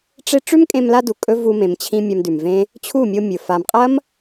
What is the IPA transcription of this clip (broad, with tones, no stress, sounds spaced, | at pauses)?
ʈ͡ʂ e˦ ʈ͡ʂ ʉ˦ m kʼ ẽ˧ m l a˧ d u˨ kʼ ɵ˦ v u˧ m ẽ˨ m t͡ɕʰ ĩ˧ mʲ a˧ m d ʉ˨ m v ẽ˦ | t͡ɕʰ u˦˨ mʲ o˧ mʲ ɵ˨ f a˨ m qʼ ɐ˦ m